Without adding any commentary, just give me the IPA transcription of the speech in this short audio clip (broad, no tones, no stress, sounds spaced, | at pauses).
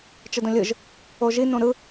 t͡ʃ ə d õ lʲ ɯ ʒ | o ʒ i n õ ɾ ɯ